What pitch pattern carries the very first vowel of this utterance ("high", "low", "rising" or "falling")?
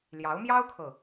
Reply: rising